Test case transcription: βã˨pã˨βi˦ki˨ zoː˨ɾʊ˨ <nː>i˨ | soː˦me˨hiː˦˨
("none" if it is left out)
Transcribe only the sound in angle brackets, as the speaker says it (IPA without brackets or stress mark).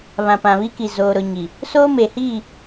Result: ɲ